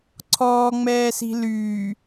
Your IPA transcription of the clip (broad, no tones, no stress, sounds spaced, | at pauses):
ǀʰ ɔː ŋ͡m ɛː s i̤ l yː